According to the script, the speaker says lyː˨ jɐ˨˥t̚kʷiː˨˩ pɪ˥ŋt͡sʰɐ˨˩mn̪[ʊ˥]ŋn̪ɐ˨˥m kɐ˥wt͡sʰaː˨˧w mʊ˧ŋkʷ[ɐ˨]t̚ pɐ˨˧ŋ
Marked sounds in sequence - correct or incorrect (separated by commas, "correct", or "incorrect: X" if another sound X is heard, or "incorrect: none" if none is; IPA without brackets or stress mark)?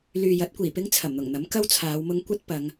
incorrect: ʊ˨˩, incorrect: ɐ˥